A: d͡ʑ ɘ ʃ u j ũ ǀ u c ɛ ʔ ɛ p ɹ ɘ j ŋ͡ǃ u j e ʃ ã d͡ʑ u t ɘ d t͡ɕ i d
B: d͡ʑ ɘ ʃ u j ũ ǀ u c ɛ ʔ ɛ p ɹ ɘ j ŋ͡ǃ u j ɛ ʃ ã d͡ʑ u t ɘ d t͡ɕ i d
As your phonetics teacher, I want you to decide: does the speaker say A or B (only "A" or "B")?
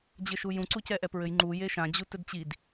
A